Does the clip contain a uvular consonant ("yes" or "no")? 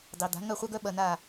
yes